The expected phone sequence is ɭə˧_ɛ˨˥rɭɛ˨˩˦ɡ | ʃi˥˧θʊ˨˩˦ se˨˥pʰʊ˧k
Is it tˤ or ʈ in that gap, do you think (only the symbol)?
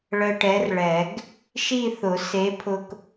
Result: ʈ